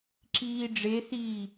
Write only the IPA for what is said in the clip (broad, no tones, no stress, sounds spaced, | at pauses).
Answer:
ǁ iː ɖ͡ʐ e θ iː